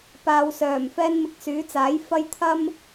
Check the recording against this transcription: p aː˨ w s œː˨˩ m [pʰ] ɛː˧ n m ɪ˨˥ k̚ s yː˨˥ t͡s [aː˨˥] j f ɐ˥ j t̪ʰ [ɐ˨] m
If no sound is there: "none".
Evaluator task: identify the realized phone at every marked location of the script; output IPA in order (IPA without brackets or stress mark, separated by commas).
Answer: f, aː˨˥, ɐ˥